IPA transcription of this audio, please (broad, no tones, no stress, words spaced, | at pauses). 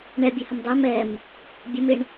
ɳɛbʲɛhəm dˤem ɛm | bʲəmɪɳ